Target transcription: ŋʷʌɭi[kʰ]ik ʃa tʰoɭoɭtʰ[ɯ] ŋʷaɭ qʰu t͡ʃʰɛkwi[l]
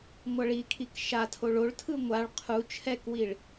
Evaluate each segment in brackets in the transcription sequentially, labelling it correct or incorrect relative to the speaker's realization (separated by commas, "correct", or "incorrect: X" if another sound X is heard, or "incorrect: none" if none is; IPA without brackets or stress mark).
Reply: correct, correct, incorrect: ɭ